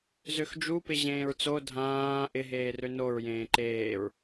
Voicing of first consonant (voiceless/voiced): voiced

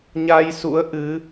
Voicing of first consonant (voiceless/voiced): voiced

